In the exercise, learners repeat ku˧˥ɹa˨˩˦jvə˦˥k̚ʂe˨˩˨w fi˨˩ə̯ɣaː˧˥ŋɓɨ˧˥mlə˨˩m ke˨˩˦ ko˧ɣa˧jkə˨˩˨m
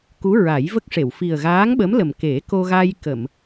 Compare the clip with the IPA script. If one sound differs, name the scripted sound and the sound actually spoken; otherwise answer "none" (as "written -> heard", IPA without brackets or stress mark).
ɨ˧˥ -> ə˧˥